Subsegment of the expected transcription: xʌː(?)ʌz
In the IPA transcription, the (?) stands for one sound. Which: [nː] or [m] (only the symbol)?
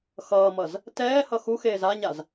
m